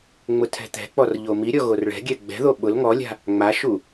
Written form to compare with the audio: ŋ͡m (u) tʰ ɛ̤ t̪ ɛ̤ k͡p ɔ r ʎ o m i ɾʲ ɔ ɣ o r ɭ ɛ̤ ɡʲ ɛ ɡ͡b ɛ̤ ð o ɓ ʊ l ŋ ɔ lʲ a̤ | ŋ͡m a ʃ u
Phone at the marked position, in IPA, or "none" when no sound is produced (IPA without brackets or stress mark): ʊ